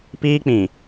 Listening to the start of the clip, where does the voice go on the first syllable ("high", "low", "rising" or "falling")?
high